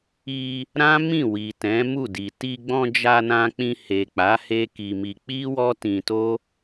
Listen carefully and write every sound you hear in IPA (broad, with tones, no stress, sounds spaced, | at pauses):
i˧ | ɾ ã˦ m ĩ˦˨ w i˨ t ɛ̃˨˦ m u˦˨ d i˨ t i˧ ɡ͡b ɔ̃˧ d͡ʒ a˧ n ã˧ k͡p ĩ˧ h e˨ k͡p a˨˦ h e˦ k i˧ m i˧ k͡p i˦ w ɔ˦ t ĩ˧ t o˦